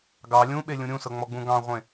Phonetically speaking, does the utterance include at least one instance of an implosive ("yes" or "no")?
yes